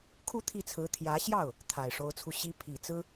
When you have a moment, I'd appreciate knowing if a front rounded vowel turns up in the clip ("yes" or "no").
no